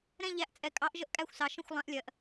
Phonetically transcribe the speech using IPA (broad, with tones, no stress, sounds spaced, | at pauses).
ɾ ɛ̃˥˧ ʎ æ˨˥ ʔ t͡sʼ ɛ˩˧˩ kʼ ɑ˨˥ ʔ ʒ ə˥˧ ʔ kʼ æ˥˧ xʷ s ɑ˩˧˩ ʃ ə̃˥˩ xʷ lˠ ɛ̃˨˥ ʔ lʲ ɜ˩˧ ʔ